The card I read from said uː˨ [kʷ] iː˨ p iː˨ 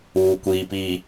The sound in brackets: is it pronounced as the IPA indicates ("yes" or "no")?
yes